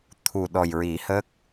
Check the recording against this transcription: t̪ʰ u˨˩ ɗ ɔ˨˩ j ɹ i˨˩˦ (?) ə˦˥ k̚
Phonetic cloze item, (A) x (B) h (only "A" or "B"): B